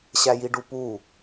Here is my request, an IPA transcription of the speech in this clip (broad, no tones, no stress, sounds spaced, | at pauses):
ɕ æ j i ɖ u p u